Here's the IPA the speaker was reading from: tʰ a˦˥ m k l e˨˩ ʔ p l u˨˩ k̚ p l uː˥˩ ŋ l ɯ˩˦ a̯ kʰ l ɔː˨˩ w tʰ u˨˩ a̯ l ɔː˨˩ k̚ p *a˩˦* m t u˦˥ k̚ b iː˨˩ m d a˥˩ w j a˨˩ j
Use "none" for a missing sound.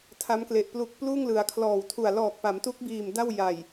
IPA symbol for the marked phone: a˩˦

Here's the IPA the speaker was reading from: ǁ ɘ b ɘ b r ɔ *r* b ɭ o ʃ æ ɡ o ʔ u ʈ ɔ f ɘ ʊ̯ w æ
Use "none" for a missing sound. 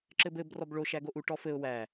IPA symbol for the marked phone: none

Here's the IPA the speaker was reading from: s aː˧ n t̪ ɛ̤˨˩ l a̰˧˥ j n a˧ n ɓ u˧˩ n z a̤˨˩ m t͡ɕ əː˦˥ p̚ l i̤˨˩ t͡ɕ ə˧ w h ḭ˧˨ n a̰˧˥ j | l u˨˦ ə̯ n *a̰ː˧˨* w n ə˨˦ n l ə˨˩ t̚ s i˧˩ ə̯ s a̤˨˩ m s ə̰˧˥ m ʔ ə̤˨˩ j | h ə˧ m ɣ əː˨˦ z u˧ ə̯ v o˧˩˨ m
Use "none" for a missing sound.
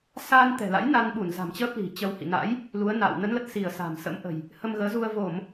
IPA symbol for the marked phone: a̰ː˧˨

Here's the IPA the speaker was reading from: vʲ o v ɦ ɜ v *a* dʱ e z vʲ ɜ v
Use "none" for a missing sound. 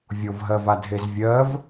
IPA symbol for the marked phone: a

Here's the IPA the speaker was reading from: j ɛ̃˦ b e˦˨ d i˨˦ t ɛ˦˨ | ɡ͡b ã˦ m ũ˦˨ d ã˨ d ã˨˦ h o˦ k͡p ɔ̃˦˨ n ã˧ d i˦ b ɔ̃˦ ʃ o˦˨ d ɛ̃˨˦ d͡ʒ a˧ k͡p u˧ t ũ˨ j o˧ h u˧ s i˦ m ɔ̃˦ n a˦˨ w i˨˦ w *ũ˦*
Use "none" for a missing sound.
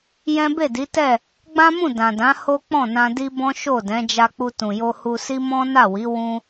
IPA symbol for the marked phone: ũ˦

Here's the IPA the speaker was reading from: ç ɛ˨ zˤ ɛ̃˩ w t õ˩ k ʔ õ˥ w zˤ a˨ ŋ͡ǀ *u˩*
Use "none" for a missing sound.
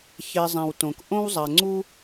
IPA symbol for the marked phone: u˥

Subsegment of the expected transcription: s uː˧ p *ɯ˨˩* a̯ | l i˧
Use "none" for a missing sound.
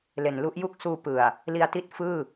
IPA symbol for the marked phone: ɯ˨˩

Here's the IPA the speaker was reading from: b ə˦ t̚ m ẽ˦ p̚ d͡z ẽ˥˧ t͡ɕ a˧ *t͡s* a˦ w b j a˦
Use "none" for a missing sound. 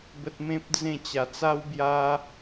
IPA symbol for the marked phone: t͡s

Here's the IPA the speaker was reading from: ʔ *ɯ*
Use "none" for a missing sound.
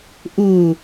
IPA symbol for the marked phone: u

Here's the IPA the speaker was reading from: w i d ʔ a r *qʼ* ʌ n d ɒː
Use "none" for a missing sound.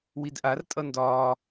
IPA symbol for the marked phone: tʼ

